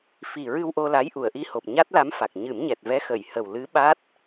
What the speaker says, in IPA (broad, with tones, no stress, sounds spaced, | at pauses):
f i˨˩ ɹ ɨ˧ w ʔ o˧ l a˧˥ j ʔ u˨˩˨ ə̯ ʔ i˧ h o˨˩ p̚ ɲ a˦˥ t̚ l a˧˥ m f a˨˩ k̚ ɲ ɨ˨˩˦ m ɲ ɛ˨˩ t̚ v ɛ˧˥ x ə˨˩˨ j h ə˨˩ w l ɨ˧˥ ɓ a˦˥ t̚